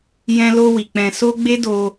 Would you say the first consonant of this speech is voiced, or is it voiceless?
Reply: voiced